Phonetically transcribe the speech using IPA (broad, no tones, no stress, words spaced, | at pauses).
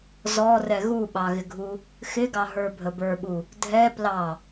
zɔrɛ ɣuɓɑɣɪɡʱu | xɪɡɑɦə˞bʱə bə˞ɓu | dʱɛ plɑ